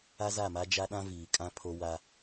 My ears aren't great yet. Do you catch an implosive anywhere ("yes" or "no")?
yes